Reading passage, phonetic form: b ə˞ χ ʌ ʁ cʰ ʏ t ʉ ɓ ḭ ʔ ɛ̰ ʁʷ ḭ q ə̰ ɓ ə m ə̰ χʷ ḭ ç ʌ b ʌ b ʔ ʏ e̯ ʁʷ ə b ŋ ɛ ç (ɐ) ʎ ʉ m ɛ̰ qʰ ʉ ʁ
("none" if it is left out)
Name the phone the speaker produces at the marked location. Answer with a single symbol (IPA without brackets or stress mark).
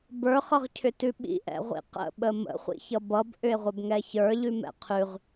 ə˞